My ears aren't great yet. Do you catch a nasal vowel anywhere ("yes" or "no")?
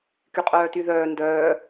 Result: no